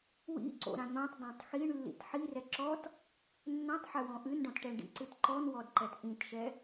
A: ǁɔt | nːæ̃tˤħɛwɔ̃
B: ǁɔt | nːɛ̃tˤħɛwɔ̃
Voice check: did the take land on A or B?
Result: B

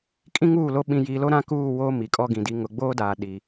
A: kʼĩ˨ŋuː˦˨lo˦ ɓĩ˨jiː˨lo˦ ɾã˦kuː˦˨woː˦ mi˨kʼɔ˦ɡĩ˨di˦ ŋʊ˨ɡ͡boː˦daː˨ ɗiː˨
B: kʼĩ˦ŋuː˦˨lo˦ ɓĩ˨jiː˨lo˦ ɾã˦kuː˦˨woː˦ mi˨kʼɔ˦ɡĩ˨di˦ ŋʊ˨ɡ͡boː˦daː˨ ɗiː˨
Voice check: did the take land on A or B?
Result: B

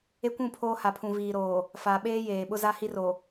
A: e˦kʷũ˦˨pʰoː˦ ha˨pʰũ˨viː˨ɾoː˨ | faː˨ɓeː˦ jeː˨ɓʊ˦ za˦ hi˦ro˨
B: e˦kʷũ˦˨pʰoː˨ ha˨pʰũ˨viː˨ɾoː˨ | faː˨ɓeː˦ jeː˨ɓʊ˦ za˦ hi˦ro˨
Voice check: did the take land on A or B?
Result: A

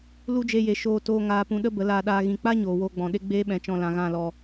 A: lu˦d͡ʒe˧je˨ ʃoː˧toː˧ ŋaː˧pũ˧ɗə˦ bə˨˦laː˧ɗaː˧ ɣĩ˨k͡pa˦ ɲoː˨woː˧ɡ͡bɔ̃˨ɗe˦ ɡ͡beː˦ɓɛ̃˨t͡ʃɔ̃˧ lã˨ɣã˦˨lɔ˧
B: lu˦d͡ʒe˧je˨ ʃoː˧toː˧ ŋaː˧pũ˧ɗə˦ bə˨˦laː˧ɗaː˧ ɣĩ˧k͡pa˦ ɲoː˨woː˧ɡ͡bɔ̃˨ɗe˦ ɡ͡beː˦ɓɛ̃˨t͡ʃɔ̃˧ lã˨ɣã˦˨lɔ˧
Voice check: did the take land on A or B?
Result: A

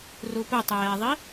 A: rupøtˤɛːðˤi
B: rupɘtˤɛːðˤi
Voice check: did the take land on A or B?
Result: B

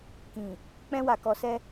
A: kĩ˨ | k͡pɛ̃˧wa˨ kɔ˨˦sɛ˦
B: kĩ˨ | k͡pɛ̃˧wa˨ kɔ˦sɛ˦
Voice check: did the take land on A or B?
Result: A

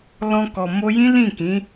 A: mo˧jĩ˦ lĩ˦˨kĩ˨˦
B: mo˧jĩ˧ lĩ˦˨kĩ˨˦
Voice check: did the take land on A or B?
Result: A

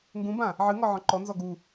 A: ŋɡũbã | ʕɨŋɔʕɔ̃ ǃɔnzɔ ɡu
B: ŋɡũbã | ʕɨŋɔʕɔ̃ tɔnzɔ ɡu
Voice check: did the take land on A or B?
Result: A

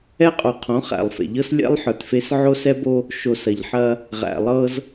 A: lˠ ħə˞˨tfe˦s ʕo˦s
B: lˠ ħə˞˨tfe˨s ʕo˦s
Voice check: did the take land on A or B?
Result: A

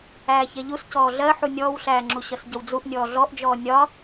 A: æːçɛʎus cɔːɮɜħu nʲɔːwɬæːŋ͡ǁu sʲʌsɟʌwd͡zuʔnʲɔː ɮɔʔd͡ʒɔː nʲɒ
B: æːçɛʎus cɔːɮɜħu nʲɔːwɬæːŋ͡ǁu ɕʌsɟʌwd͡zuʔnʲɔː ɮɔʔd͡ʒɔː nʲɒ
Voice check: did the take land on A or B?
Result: B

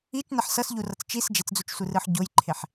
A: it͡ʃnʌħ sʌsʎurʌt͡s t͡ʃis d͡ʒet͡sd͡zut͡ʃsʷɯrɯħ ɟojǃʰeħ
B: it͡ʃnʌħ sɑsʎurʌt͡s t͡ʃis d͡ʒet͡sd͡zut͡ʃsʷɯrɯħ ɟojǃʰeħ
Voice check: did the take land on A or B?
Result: A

